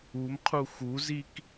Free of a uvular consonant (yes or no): no